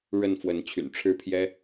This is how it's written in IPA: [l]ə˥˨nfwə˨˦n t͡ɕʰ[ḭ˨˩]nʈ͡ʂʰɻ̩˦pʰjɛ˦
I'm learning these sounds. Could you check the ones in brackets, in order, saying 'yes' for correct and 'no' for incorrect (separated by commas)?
no, no